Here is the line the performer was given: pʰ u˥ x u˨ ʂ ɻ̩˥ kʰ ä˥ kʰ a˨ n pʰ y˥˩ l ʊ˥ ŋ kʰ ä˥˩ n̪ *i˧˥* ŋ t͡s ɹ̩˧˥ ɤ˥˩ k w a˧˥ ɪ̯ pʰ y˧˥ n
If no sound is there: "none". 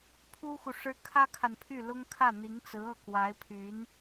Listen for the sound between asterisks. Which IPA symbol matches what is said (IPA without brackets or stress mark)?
i˧˥